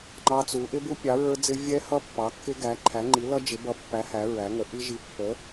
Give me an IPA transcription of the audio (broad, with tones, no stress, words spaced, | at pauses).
ŋ͡ǃɑ˦˥t͡su˨˥ ʔɪ˦˥bu˦˥pʲɑ˨˥ ɹə˞˦˥d͡zɪ˦˥ vʲɛ˦˥hʌ˦˥ pːɑ˨˥kːɪ˦˥ɡæ˨˥ ǃʰæ˨˥ŋ͡ǃi˨˥lʌ˦˥ d͡ʒɪ˨˥ bʌ˨˥pːæ˨˥ hæ˨˥ɹæ˨˥ŋə˨˥ ʔi˦˥ ʒi˨˥pːə˨˥